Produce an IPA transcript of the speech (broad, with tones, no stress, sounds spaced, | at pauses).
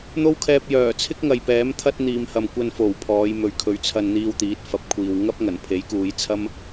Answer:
n̪ o˥ w kʰ ɛː˧ p̚ j œː˨˩ t͡sʰ ɪ˥ k̚ ŋ ɐ˨ j p ɛː˨˥ m t̪ʰ ɐ˥ t̚ n̪ iː˨ m h ɐ˨ m kʷ ɐ˧ n f o˨˩ w pʰ ɔː˨˧ j m ɵ˨ ɥ kʰ ɵ˨ ɥ t͡sʰ ɐ˧ n n̪ iː˧ w t̪ iː˨˥ t̚ f ɐ˨˥ p̚ kʷʰ iː˨ w ŋ ɐ˥ p̚ ŋ ɐ˨˩ n pʰ e˨˥ j k uː˨˧ j t͡sʰ ɐ˥ m